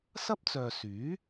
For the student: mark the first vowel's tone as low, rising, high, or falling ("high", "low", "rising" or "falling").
high